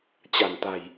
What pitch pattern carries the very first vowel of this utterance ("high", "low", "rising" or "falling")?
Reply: low